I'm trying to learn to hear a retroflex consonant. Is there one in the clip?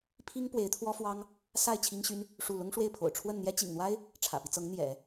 yes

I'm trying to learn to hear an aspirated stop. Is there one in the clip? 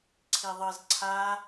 yes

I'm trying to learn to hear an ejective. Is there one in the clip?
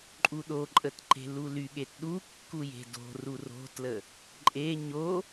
yes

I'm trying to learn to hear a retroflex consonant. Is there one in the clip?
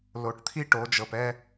yes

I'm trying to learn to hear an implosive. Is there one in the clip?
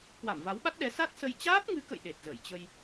yes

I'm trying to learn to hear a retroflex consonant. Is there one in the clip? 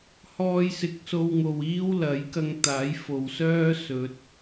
no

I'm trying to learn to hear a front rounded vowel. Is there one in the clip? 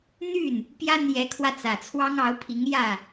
yes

